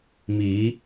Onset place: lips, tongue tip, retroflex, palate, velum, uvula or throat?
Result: lips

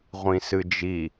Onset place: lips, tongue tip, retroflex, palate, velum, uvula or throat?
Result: uvula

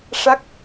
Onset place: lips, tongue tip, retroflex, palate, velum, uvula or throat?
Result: retroflex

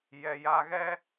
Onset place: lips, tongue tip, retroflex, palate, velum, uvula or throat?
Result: palate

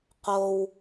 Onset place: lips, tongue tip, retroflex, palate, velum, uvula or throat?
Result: uvula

